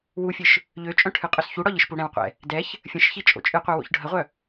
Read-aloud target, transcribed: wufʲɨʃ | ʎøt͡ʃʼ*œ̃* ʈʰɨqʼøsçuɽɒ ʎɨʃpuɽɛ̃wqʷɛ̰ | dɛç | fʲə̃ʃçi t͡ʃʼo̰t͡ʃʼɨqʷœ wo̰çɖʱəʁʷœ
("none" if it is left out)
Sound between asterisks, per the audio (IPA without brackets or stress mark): œ̃